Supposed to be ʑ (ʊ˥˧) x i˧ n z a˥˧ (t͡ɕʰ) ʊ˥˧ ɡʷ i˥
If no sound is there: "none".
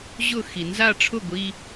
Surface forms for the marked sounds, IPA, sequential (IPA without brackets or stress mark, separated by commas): ʊ˥˧, ʈ͡ʂʰ